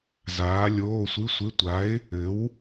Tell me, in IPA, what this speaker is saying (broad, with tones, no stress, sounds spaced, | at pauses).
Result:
z aː˨˥ lʲ oː˧˥˧ sʷ ɨ˧˥˧ sʷ ɪ˧˥˧ tʷ a˨˥ ɪ̯ | ɘ˨˥ w